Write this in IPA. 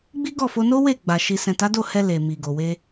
ɡ͡b i˦ ɡ ɔ˦˨ f o˧ n o˦ w e˦˨ ɡ͡b a˨ ʃ i˨ s ɛ̃˨ t a˨˦ d o˦˨ h ɛ˧ l e˨ m i˨ ɡ o˨ w e˧

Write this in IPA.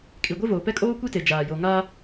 kʼ i˨ ɡʷ e˦ v oː˨ p ɛ˦ kʼ oː˦ kʷ i˦ t e˨ d͡ʒ aː˨ j o˨ ŋ a˦

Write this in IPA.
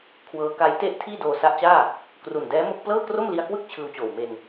kʰ w ɤː˦˥ k a˦˥ j t e˥˩ ʔ tʰ iː˥˩ d oː˧ s a˦˥ ʔ t͡ɕ aː˥˩ | k r u˨˩ n d ɛː˦˥ m o˥˩ k̚ p l ɤː˥˩ k r o˥˩ m l i˧ a̯ k w ɯ˥˩ k̚ t͡ɕʰ ɯː˧ w t͡ɕ oː˨˩ w m e˧ n

